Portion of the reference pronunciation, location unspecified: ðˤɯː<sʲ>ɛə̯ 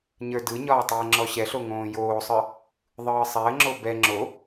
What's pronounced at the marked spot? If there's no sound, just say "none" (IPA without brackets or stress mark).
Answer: sˤ